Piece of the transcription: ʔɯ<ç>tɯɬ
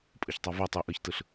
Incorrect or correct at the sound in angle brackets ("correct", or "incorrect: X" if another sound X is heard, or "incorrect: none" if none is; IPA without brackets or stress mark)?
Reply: correct